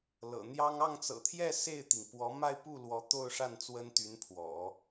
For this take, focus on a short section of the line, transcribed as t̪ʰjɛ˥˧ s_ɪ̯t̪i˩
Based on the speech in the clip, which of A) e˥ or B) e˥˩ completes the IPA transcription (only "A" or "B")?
B